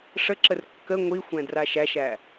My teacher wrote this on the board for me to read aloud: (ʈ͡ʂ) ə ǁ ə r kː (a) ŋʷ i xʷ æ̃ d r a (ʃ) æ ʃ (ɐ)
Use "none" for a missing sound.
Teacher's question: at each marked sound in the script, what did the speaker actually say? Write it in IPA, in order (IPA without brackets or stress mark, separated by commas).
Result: ʂ, ə, ʃ, æ